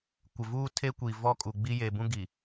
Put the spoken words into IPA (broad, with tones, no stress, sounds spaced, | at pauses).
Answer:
kʷ ɪ˨ v uː˦ tʰ e˦ kʷ i˨ v ɔ˦ kʼ u˨ ɡ͡b i˦ j e˨ b ũ˦ ɡ i˨